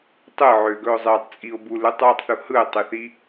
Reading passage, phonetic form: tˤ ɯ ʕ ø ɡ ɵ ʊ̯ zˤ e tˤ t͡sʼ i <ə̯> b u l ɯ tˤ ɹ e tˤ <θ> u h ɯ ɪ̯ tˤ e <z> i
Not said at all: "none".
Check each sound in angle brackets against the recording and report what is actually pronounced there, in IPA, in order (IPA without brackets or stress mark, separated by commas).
ʊ̯, θ, θ